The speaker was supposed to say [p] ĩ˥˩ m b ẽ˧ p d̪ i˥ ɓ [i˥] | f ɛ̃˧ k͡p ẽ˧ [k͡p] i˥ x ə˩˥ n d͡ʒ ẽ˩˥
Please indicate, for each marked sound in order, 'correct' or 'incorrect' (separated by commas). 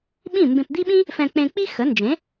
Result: incorrect, incorrect, correct